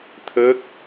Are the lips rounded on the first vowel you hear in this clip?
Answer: no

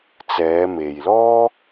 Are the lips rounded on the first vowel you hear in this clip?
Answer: no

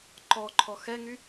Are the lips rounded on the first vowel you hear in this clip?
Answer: yes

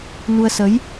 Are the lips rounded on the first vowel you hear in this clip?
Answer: yes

